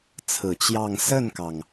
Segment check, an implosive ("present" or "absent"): absent